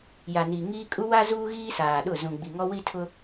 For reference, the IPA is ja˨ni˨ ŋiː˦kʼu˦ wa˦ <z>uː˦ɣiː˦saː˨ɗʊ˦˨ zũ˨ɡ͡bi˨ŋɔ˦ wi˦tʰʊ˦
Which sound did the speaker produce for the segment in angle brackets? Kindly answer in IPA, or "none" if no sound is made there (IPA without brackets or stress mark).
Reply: z